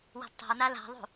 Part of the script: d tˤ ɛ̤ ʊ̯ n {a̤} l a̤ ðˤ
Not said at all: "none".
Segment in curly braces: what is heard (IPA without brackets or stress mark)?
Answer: a